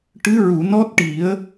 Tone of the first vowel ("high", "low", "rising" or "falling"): rising